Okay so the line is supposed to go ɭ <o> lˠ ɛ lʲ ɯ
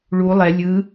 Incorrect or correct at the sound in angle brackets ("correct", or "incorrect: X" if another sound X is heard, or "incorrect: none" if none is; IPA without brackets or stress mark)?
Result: incorrect: u